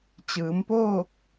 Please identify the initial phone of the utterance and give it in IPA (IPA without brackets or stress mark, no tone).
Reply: t͡ɕ